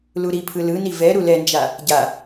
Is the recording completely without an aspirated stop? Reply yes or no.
no